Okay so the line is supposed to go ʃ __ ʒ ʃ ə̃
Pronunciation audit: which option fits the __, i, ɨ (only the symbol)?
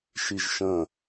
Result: i